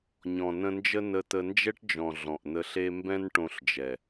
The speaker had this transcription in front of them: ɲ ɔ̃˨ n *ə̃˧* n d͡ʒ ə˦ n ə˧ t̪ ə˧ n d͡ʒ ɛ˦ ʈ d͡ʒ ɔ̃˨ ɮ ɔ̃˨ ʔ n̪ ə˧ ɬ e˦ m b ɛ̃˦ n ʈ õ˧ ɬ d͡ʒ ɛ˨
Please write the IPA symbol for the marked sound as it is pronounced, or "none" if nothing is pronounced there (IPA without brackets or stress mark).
ə̃˧